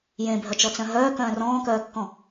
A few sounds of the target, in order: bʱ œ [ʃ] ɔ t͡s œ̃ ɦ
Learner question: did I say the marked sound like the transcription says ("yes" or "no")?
no